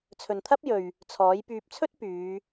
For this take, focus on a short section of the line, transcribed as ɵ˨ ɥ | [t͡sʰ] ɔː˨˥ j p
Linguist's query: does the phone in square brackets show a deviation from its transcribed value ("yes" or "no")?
no